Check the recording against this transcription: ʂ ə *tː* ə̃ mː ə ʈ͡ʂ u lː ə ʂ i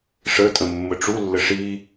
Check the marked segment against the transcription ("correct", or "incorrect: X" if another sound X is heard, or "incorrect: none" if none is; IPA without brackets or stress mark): incorrect: tʼ